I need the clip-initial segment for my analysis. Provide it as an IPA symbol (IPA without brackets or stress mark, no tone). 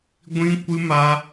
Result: ɡʷ